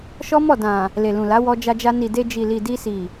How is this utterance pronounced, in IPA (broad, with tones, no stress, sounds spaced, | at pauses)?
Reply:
ʃ ɔ˦ m ɔ˦˨ d ã˨ | l e˨ l ũ˨ l a˨˦ w ɔ˧ d͡ʒ a˧ d͡ʒ a˧ n i˨ d e˧ d͡ʒ i˨ l i˨ d i˧ s i˨